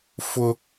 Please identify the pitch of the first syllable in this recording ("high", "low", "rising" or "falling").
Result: high